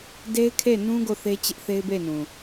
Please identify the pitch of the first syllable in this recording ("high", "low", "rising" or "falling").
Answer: high